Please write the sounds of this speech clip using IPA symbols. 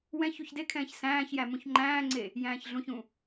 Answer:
w ɛ̃ ç u ç d e kʰ ɛ̃ː ç s æ̃ː ç j æ m ũ ç ŋ͡ǃ æ̃ː ŋ͡ǀ e | j æ̃ː ç ɮ ũ ç ũ

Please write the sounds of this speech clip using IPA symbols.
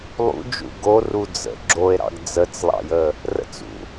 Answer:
lˠ ṵ d͡ʒ ṵ ɡ o r u d͡z ə̰ ɡ͡ǁ o e̯ ɾ ɑ̰ ɡ d͡z ə t͡s lˠ ɑ̰ j ə | r ə̰ t͡s ṵ

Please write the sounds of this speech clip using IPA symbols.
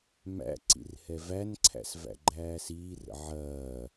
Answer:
m æ̰ ǀ ḭ r h ɛ v æ n ǀʰ æ̰ s v æ̰ ɡ͡ǃ æː s iː r ə̰ ʕ ɐː

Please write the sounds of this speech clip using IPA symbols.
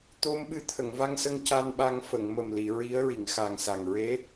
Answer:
t̪ o˧ m ɓ ɨ˧ t̪ʰ ə˨˩˨ ŋ v a˧ ŋ s ə˧ ŋ c a˧ n ɓ a˧ ŋ f ə˨˩˨ ŋ m ə˨˩ m l i˨˩˨ ɹ i˧˥ ə̯ ɹ i˨˩˨ ŋ x a˨˩ ŋ s a˨˩ ŋ ɹ e˧˥

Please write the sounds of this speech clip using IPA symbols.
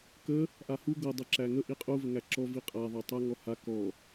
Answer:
k ə | ʔ a h u ɡ ɤ dˤ i ǁ æ ŋ ə ʔ i qʼ u v ə ŋ æ ǁ ɔ v i qʼ a ðˤ ɤ tˤ a ŋ ɔ h a k ɔ

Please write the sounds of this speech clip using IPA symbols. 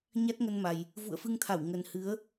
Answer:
ɲ a˦˥ t̚ ŋ ə˧ n m a˨˩ j | v ṵ˧˨ ə̯ f ɨ˧ ŋ t̪ʰ a˧˩ w ŋ ə˨˩ n h ɨ˨˦ ə̯

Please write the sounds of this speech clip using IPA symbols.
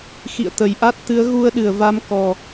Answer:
x ḭ˧˨ ə̯ t̪ ə˧˩ j ʔ a˦˥ t̚ t̪ ɨ˨˦ ə̯ ɣ u˧ ə̯ ɗ ɨ˧˩ ə̯ v a˨˦ m k ɔ˨˩

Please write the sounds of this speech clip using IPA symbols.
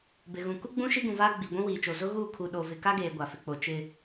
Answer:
b ɪ˨ ɣ ũ˨ k u˦ ɡ͡b ũ˦ ʃ i˦ ɡ ũ˨ v aː˦ ɡ͡b i˨ ɡʷ ũ˦ w iː˨ t͡ʃ o˨ z ʊ˦ ɣ uː˦˨ kʰ u˨ ɗ o˨ v ɪ˨ k a˦ ɡ eː˨ ɡʷ a˨ f ɪ˨ k͡p o˨ t͡ʃ ɪ˨

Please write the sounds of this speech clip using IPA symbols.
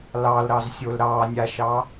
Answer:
l ɑ l ɾ ɑ z sʲ o l ɾ ɑ nʲ a ʃ ɑ

